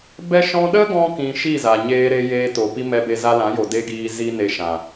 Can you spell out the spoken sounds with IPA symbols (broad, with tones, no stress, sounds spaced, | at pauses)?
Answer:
b ɛ˧ ʃ ɔ̃˧ ɗ ə˦ ɡ ɔ̃˧ k ĩ˧ ʃ i˦˨ z a˨ ɲ eː˧ ɾ e˧ j eː˧ t o˨ p i˧ m ɛ˧ b e˧ z a˧ l ã˨˦ j o˨ d e˦ ɡ iː˧ z i˦ n e˧ ʃ ã˨